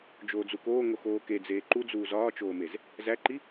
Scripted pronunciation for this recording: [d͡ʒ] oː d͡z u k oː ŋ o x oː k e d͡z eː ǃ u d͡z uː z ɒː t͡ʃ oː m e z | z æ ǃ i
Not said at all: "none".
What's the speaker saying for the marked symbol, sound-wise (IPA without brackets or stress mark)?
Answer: d͡ʒ